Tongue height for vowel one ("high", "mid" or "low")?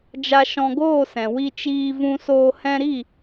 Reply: low